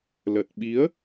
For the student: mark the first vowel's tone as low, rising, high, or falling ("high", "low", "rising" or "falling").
low